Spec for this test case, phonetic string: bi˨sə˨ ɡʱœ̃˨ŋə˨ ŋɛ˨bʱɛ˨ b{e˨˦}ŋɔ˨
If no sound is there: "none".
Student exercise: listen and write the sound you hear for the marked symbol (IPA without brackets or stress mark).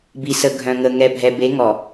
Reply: e˨˦